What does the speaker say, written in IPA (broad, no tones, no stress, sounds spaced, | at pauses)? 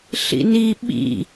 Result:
ɬ ḭ n i ɓ ḭ